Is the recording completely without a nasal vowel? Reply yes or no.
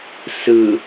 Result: yes